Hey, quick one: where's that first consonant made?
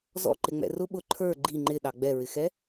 tongue tip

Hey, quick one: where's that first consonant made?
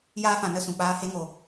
palate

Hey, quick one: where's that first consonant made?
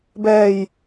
lips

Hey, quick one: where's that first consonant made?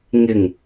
velum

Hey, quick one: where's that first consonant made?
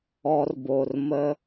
tongue tip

